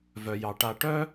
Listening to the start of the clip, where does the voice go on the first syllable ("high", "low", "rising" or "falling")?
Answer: low